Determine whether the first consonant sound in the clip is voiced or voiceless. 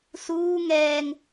voiceless